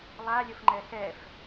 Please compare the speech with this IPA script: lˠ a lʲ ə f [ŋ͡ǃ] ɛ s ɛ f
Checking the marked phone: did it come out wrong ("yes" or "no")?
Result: no